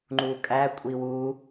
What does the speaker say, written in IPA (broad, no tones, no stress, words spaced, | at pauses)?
ŋ͡ǃukʼæ kʷʼiwu